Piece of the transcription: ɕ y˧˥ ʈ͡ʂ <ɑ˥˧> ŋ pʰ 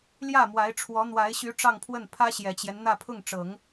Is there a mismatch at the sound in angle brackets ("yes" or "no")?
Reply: no